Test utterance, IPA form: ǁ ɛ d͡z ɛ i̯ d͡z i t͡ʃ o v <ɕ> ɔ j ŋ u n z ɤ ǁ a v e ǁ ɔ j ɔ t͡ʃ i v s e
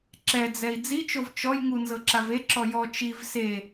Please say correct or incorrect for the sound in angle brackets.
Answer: incorrect